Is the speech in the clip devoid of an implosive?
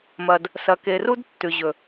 yes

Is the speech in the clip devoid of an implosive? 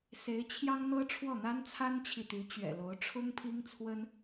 yes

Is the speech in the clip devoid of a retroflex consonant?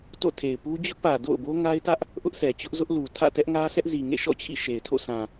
yes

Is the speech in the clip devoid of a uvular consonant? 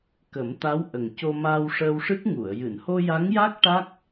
yes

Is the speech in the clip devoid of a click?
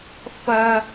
yes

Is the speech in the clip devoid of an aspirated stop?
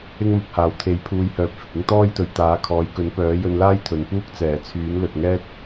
no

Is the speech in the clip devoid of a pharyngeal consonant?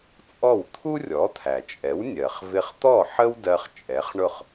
no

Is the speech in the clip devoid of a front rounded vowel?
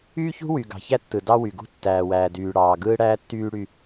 no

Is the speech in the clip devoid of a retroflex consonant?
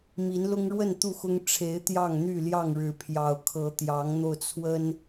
no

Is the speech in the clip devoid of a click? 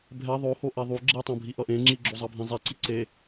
no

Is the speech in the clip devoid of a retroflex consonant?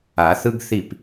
yes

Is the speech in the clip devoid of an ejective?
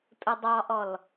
no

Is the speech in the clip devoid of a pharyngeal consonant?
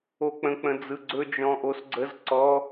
yes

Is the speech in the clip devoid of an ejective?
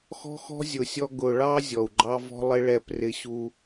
yes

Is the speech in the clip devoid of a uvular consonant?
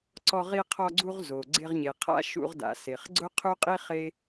no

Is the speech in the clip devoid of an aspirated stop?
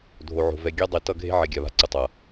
yes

